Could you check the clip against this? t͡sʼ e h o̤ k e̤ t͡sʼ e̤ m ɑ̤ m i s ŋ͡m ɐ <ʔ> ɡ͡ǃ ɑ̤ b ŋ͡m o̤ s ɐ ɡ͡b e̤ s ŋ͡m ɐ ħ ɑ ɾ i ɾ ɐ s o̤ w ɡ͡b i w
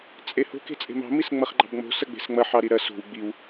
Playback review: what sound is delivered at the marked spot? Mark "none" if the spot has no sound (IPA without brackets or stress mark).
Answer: χ